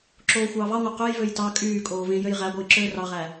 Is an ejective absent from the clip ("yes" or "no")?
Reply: no